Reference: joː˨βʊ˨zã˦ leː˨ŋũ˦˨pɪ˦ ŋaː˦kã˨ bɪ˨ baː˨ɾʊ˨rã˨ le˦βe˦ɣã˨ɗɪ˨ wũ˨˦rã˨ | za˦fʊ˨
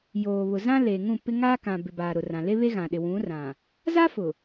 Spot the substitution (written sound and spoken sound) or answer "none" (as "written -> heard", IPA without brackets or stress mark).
none